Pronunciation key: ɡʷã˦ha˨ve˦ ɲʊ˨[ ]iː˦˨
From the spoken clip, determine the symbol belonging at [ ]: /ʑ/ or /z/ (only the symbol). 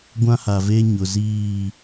z